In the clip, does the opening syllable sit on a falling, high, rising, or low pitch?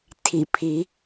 low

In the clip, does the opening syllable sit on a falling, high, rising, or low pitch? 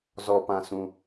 low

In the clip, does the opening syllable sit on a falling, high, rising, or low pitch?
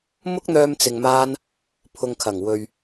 high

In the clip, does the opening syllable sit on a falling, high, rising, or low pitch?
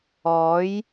rising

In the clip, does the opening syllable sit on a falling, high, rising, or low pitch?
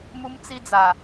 high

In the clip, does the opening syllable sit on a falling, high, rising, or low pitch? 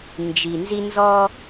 low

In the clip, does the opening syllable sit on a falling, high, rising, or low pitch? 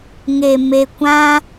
low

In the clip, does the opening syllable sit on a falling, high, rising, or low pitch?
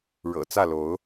low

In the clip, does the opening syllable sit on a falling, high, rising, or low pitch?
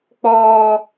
high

